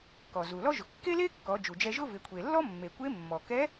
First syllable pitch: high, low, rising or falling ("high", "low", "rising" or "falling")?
low